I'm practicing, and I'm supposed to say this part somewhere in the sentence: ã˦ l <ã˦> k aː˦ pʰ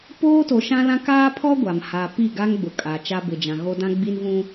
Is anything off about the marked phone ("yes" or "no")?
no